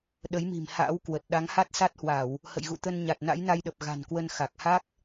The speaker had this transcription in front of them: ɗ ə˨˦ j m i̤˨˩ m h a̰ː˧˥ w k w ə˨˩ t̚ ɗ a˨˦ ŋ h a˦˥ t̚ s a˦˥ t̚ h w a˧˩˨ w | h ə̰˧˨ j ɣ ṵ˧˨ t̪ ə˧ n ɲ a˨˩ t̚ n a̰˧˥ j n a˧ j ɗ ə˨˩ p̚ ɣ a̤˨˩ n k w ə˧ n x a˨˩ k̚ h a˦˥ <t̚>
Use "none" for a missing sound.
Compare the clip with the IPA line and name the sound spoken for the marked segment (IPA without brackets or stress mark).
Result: k̚